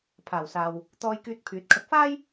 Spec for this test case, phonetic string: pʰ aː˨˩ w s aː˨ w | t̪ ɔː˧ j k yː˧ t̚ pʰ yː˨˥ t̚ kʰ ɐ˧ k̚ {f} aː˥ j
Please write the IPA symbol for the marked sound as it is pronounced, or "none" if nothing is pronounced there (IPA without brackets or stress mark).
f